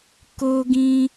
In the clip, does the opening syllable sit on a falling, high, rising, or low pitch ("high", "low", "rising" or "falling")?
high